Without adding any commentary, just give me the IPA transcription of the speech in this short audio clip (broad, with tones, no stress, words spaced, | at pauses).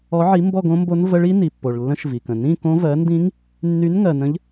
ɔ˨˦ʕi˨˦ mbɔ˥˧ɡõ˦˥mbo˦˥n və˦˥ɭi˦˥ ni˩pːo˩ɭ lːə̃˦˥ʃvi˩kə̃˩ nĩ˥˧kõ˦˥ vɜ˨˦ndĩ˦˥ŋ | nːy˨˦nŋɜ˩nə̃˨˦ʎ